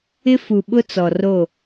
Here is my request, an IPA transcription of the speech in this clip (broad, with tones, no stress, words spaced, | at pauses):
ɪ˦fu˨ɓʊ˦ t͡sɔ˨ro˦˨